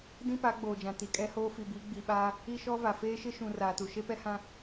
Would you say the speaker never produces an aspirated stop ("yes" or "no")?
yes